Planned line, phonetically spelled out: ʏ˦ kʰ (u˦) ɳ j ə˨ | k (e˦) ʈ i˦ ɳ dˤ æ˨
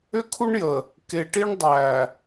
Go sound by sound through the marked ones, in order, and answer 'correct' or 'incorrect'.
correct, incorrect: e˨

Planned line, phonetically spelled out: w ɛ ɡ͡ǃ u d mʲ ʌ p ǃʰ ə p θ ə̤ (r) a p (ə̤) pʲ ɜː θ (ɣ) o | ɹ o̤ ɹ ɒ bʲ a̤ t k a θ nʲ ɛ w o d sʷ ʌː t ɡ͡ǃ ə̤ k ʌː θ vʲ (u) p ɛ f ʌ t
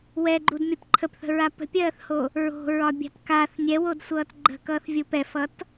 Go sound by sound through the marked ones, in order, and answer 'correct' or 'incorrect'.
incorrect: ɹ, correct, incorrect: h, correct

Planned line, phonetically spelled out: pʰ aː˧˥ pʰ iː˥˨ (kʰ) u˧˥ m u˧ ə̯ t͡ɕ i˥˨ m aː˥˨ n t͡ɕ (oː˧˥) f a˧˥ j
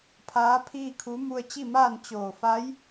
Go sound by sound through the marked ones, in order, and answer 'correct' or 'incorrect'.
correct, incorrect: oː˧˩

